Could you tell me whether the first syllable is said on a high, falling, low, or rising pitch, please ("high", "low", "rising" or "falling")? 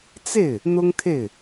falling